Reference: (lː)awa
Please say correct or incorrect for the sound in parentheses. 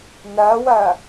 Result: incorrect